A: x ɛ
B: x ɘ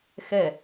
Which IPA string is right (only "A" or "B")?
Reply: A